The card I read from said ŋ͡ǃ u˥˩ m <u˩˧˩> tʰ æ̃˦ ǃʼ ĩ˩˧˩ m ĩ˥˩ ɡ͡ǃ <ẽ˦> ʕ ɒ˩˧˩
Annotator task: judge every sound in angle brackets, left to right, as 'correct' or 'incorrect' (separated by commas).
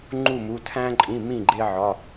correct, incorrect